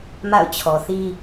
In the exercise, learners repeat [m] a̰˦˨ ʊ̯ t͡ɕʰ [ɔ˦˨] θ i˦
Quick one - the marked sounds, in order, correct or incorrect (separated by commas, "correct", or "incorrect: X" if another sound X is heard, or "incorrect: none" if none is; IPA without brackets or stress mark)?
correct, incorrect: ɔ˨